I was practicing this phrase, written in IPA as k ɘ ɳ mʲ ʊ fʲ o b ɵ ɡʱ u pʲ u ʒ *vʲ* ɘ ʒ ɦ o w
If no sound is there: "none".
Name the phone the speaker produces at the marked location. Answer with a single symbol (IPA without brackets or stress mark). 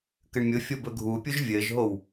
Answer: vʲ